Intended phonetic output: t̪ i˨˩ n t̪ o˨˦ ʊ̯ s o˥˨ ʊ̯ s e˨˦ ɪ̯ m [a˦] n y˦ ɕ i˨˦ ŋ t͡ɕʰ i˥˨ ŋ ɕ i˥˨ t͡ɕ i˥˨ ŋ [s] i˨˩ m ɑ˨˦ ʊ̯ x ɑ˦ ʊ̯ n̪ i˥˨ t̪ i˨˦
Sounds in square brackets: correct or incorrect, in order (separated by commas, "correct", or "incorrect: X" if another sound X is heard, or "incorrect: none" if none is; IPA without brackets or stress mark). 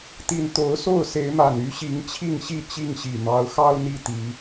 incorrect: a˨˩, incorrect: ɕ